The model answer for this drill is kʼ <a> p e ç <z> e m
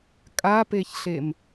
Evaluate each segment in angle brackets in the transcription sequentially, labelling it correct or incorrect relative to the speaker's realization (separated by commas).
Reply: correct, incorrect